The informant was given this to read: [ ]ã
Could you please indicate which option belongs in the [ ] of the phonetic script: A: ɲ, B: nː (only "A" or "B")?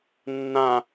B